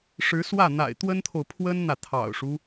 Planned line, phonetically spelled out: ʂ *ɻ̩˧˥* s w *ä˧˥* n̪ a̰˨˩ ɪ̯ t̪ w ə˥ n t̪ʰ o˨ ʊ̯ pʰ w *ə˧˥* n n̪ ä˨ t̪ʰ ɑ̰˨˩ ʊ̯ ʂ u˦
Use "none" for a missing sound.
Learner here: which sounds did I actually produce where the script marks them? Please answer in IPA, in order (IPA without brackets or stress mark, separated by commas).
ɻ̩˧˥, ä˥˩, ə˥